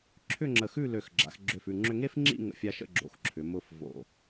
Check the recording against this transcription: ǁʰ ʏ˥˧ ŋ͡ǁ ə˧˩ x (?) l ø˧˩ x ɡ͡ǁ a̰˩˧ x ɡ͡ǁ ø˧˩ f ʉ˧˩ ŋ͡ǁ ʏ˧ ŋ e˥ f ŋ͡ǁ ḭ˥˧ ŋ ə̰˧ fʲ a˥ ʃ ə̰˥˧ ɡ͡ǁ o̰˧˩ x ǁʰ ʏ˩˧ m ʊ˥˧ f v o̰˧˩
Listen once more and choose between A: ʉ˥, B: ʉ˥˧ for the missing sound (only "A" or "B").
B